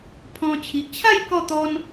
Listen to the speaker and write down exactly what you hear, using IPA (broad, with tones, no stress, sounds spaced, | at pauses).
pʰ ɔ̃˧ t͡ɕʰ i˨ ʔ t͡ɕʰ a˥˧ j k ɔ˥˧ t̪ ɔ˦ n